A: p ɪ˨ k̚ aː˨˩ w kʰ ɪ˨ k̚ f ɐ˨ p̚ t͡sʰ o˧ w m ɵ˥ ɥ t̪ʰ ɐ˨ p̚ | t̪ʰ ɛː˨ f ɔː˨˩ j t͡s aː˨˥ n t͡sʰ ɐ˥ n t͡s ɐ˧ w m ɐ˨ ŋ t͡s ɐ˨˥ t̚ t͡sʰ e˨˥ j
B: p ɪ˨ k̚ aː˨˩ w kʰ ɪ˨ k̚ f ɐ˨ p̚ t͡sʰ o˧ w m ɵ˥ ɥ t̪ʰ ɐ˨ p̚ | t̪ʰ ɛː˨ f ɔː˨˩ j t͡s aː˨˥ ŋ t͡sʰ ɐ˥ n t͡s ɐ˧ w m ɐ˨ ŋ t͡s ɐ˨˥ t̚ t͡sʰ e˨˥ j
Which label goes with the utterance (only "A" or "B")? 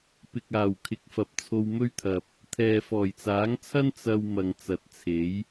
B